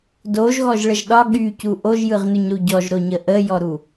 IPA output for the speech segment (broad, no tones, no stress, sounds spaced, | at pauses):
d o ʒ ɣ ɔ ʒ ɭ ə ʒ ɗ ɒ ɠ y c u ʔ o ʒ j ɯ ʁ n ʉ ɲ ɾ u ɟ ɔ ʒ ɾ o ɲ ə ʔ ə j ɔ ɾ u